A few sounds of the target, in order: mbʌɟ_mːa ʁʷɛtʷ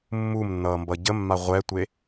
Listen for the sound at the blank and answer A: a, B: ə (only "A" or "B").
B